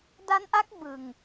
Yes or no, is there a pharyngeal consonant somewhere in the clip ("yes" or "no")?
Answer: no